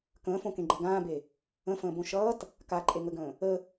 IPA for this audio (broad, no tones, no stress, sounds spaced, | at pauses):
k ə̃ː f õ k ẽ ɡ͡ǃ ʌ ɡ ãː b e | ə̃ f ə̃ː b õ ʃ ʌː t | k a ǃʼ e ŋ ə ɡ ə̃ː | ə